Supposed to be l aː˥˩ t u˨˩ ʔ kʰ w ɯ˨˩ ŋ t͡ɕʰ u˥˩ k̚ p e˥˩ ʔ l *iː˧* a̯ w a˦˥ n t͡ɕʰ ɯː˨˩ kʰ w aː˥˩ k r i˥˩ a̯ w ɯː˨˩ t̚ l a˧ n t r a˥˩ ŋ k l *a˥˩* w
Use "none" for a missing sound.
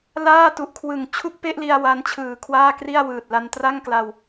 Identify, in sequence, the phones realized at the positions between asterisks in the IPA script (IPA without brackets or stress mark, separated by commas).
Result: i˧, a˧